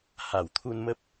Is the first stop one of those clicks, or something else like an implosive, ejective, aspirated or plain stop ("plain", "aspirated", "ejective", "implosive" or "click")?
aspirated